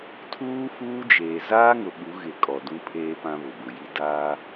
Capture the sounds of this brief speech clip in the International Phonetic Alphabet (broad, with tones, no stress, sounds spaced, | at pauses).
tʰ uː˦ f uː˦ d͡ʒ eː˨ z aː˦ ŋ ʊ˨ ɓ u˨˦ ɣ ɪ˨ kʼ ɔ˨ d ũ˦ pʰ eː˦ p ã˦ β ʊ˨ b ʊ˨ j i˦ d aː˦